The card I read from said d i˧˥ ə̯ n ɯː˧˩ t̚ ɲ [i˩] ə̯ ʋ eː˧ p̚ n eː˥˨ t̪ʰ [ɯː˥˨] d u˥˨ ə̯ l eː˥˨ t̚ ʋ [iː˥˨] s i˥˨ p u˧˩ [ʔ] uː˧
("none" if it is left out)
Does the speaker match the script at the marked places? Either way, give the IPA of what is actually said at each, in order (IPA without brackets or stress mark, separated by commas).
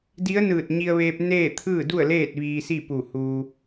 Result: i˧, ɯː˥˨, iː˧, h